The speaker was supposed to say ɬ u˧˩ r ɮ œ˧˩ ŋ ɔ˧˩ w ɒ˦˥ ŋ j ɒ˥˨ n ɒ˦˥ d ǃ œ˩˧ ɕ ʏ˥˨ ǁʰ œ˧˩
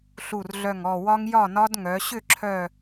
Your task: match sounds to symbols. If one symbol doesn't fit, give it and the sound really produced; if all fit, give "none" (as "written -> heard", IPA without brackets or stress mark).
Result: ǃ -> ŋ